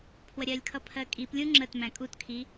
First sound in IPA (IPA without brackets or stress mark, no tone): pʰ